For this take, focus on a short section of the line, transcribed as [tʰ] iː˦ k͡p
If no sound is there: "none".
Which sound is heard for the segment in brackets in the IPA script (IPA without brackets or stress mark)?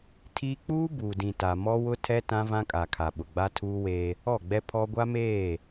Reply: tʰ